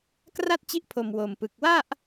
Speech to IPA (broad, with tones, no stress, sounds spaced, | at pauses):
k r a˥˩ t̚ t͡ɕ i˦˥ ʔ pʰ o˨˩ m w o˨˩ m p ɯ˨˩ k̚ w a˥˩ ʔ